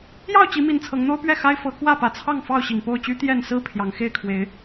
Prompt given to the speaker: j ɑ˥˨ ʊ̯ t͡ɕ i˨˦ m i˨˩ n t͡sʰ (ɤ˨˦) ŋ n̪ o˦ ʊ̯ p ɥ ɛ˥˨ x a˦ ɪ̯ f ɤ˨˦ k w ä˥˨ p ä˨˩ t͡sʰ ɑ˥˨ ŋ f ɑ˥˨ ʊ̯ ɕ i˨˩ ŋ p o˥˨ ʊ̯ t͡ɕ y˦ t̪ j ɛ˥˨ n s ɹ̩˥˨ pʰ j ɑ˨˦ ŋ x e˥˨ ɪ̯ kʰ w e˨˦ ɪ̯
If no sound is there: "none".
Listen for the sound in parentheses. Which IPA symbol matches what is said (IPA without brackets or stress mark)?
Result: ɤ˨˦